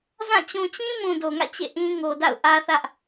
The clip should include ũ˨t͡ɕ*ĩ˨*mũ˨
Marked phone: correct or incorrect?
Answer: incorrect